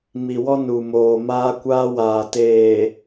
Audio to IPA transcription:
m i˨ w ɔ˦ n u˨ m oː˨ m aː˦ kʷ aː˦ w aː˨ t eː˨

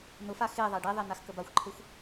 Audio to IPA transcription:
n ʊ f a x e ðˤ a ɖ e ðˤ e n a x k ə b a xʷ ǃʰ e xʷ

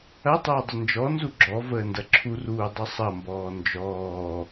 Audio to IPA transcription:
ɐ tˤ əː dˤ ə n d͡ʒ ɔ n z u ɡ͡ǁ ɔ v əː n d ɐ ǁʰ u r uː dˤ ɐ sˤ ɐ m b ɔː n d͡ʒ ɔː

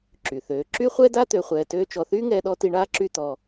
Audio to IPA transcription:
ǁ y˨ θ øː˨˦ ǁ y˦ χʷ ɛ˦ d a˦ t̪ ø˨ χʷ ɛː˨ t øː˧ t͡ʃ ɔ˨ θ yː˦ ŋ ɛː˧ ɗ ɔ˧ t i˧ ɳ aː˦ ǁ y˦˨ t̪ ɔ˧

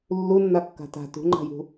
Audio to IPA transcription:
lː u nː a kː a̤ t a̤ t ṳ ŋ͡ǃ a̤ j ṳ

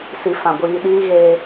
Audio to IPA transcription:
s i˨ f ã˨ ɡʷ iː˨ ɗ iː˦ ɣ eː˦

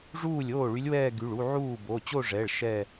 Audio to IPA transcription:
ʐ uː˥˩ lʲ oː˥˩ ɭ y˧˥ lʲ w ɛː˥˧ ɡ y˩˧˩ ɭ u˥˧ ʕ uː˥˩ b o˩˧˩ t͡ɕ o˥˧ ʐ ɛ˩˧˩ ɭ ʃ ɛ˥˧

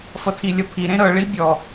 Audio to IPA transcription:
f ʌ tʰ i lʲ ʌ pʰ i ɾ ẽ ɾ ɤ ɭ i bʲ ɔ

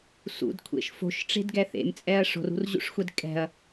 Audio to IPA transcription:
s ṵ d kʷʰ ḛ ʃ f o̤ ʃ ʈ͡ʂ e̤ d ɡ ɛ θ ḛ m t͡sʼ ɛ ɐ̯ ʂ o̤ r ṳ r ʑ ṵ ʂ xʷ ɛ d kʼ ɛ̤ ɐ̯

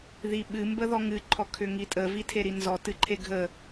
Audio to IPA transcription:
ð i ɓ ɨ m b ə ð ɔ ŋ ɨ ǃʰ ɔ kʰ ʏ ŋ i tʼ ə v i tʰ e ɾ i n z ɔ t ɨ ǃʰ e ɡʱ ə

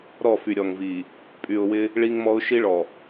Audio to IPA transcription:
ɾ ɔ˦˨ f y˨ ɾʲ ɔ˨ ŋ v i˨ | pʼ y˨ ʊ̯ w ɪ˦ | ɭ i˦ ŋ m ɔ˦ ʊ̯ ʃ i˦ ɭ ɔ˨

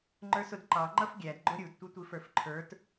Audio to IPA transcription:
ŋ͡ǃ ə˞ s ʊ d ǃ ɑ ŋ͡ǃ ʌ f ɡʲ æ d ɡ͡ǃ ʊ ɾʲ u d tʷ ʌ tʷ i f ə˞ f ǃʰ ə˞ t

